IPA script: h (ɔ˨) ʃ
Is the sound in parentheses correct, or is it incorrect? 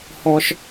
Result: correct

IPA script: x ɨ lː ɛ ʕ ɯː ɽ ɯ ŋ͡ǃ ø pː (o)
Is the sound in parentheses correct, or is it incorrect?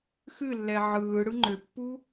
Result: incorrect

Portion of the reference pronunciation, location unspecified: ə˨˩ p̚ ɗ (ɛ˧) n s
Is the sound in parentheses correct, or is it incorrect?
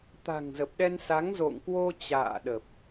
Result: correct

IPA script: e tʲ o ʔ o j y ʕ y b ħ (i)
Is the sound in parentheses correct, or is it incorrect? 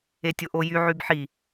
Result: correct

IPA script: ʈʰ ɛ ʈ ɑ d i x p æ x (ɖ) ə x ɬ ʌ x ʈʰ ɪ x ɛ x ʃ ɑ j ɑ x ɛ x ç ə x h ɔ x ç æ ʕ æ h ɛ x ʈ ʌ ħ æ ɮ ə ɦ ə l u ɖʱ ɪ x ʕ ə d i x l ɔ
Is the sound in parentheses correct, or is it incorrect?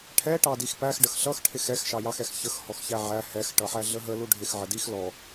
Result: correct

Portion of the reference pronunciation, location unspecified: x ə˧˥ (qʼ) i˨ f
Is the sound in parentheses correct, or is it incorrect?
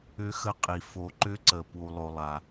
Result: correct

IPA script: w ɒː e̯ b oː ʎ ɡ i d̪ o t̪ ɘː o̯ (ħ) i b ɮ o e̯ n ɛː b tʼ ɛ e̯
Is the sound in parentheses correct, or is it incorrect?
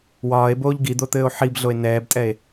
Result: correct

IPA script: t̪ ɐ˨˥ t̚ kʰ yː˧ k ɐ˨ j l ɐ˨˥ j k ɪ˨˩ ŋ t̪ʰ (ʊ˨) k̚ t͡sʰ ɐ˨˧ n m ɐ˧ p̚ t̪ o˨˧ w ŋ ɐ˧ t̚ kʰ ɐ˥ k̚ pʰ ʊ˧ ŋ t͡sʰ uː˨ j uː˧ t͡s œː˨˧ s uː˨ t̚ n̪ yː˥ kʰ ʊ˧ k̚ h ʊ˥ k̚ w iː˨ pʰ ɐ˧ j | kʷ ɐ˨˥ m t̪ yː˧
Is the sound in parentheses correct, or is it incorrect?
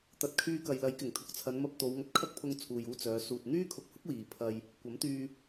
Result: correct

